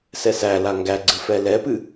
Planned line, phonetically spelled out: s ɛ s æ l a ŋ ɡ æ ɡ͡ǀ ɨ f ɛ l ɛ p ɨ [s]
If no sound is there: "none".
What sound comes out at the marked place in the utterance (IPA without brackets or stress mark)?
none